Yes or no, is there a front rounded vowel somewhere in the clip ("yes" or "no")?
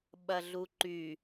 yes